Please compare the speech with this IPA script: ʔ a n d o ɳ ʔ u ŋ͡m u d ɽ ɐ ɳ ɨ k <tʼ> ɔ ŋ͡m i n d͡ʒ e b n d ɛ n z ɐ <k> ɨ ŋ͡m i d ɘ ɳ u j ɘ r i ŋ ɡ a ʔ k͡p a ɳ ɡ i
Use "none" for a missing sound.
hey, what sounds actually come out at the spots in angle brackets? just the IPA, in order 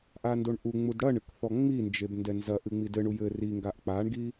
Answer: θ, ʔ

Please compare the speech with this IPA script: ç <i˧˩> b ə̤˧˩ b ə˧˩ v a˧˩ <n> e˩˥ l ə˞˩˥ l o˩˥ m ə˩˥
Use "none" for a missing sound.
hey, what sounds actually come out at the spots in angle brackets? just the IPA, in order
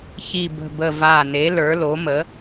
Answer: i˧˩, n

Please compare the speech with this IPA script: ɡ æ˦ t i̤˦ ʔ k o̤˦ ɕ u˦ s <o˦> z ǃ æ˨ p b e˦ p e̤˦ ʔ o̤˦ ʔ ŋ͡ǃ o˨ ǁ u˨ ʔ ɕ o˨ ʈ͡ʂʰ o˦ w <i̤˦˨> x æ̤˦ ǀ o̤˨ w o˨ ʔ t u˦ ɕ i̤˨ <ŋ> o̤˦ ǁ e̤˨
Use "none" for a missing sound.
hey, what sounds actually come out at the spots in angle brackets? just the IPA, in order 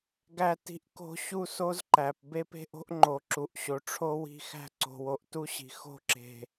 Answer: o˦, i̤˦˨, x

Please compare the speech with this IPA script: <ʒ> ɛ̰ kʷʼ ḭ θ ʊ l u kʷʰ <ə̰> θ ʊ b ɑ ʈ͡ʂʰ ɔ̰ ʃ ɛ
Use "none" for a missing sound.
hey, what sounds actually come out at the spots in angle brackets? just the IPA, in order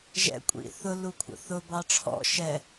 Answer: ʒ, ə̰

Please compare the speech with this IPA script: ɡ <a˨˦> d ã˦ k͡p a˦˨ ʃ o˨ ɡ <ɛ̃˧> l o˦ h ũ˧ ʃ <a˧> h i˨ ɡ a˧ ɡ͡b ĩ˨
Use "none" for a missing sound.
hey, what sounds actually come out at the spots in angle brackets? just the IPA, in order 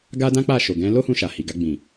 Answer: a˦, ɛ̃˧, a˨

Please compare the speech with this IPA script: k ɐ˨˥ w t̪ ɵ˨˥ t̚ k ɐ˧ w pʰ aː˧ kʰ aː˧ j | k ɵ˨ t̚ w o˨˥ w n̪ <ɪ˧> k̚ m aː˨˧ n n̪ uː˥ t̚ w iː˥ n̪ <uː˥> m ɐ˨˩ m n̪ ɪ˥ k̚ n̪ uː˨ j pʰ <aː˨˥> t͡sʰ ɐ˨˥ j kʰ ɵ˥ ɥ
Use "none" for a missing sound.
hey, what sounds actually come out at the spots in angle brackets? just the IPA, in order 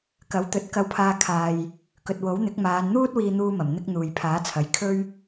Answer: ɪ˨˥, uː˥, aː˨˥

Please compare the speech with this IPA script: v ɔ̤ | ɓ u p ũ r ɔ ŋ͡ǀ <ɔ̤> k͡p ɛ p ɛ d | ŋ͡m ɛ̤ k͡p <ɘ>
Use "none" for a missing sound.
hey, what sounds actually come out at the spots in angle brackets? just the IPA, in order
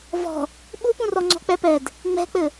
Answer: ɔ̤, ɘ

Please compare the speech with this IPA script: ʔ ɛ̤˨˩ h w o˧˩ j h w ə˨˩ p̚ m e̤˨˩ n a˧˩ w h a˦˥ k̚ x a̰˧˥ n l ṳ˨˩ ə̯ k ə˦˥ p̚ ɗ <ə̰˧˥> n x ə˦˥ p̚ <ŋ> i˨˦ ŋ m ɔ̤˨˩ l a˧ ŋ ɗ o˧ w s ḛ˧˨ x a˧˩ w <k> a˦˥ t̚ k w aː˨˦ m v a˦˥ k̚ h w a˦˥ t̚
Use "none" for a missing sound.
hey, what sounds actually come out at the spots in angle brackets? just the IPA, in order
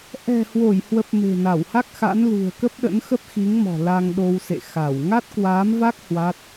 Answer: ə̰˧˥, x, ŋ

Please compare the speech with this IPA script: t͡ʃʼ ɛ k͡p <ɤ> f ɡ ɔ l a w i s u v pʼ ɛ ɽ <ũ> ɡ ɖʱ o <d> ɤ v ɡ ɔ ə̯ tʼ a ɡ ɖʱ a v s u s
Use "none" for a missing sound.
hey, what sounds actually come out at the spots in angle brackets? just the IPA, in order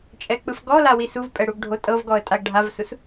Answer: ɯ, u, tʼ

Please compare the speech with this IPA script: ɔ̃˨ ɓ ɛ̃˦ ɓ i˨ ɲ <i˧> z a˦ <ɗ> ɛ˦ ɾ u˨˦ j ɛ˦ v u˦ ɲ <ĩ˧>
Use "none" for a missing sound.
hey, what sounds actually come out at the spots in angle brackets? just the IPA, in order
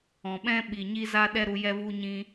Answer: i˦, ɗ, ĩ˧

